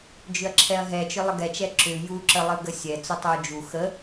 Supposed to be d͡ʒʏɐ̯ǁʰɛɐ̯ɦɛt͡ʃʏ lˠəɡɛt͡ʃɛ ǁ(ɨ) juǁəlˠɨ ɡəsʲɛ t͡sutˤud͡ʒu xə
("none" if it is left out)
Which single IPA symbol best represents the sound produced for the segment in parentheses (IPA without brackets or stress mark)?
ʏ